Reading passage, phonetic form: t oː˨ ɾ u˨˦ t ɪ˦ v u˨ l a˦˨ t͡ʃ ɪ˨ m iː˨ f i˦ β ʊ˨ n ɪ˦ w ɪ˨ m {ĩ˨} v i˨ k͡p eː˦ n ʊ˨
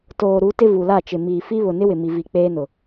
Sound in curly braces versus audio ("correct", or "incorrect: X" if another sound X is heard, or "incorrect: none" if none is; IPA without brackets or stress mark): incorrect: i˨